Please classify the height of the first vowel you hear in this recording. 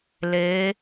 mid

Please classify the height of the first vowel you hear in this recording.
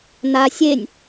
low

